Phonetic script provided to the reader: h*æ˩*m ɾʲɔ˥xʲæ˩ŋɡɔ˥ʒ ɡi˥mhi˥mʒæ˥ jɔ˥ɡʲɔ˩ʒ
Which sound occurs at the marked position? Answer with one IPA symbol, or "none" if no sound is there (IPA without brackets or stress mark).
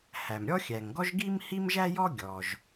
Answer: æ˩